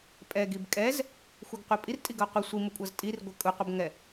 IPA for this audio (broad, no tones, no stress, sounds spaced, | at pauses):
pʼ ɛ ɡ i b kʼ ɛ z | xʷ ɯ ɡ qʷ e pʼ i r tʼ i ɡ ʌ qʷ ʌ sʷ i m u kʷʼ ʌ z tʼ i r ɡʷ ɛ kʼ u qʷ ʌ b ŋ ɛ